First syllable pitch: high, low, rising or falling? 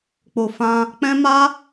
low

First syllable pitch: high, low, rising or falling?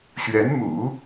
rising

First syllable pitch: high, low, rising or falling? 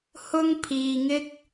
high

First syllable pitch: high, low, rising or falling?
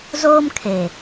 high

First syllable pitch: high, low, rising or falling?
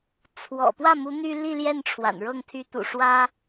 low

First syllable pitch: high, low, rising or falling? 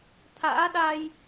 rising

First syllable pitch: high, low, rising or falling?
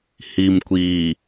low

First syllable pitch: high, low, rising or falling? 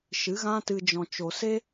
rising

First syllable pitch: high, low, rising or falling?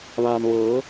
low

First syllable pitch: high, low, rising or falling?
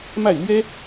falling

